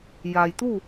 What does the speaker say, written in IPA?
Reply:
j a˩ j t̪ u˥˨

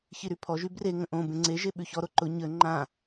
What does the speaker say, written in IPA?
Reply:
ç i ɾ y pʰ ɔ ʒ y b r e ŋ ə̃ ʔ õ b ẽ ŋ͡ǀ e ʒ e ɓ ʉ ç ɔ ɾ o ǃ ʊ ɲ ə ŋ͡ǃ ã

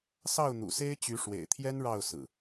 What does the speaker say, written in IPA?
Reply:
s ɑ˥˨ ʊ̯ n̪ ṵ˨˩ s e˦ ɪ̯ t͡ɕ y˨˦ ʂ w ḛ˨˩ ɪ̯ t̪ʰ j ɛ˦ n ɻ ɑ˥˨ ʊ̯ s ɹ̩˨˩

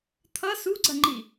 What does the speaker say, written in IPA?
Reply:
t̪ʰ ʌ s u ɡ͡ǀ ɐ ŋ͡ǃ i

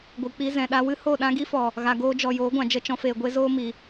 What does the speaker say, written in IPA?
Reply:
ɡʷ ɨ˨ k͡p i˧ z ɛ̃˨ ɗ a˧ w ɨ˦ h o˦˨ ɗ ã˦ ɡ i˦ f ɔ˨ | ɣ a˨ ɡ oː˧ d͡ʒ ɔ˨ j oː˨˦ ɡʷ ã˨ d͡ʒ ə˦˨ t͡ʃ ɔ̃˧ f eː˨ ɡʷ e˧ z oː˦ m i˨

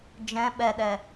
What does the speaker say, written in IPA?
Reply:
d͡ʒ ɛ̃ ɓ ɛ ɗ ɛ

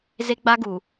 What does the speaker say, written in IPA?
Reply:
z e˦ ɡ͡b a˦ ɡ u˨

